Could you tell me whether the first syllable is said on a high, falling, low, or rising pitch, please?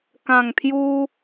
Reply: low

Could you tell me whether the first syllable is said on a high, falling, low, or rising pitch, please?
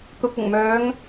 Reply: low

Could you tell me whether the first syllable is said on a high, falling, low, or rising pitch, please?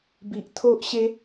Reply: low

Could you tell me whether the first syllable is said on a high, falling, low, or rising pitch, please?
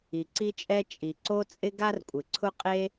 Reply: low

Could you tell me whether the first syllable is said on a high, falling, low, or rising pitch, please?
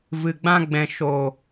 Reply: low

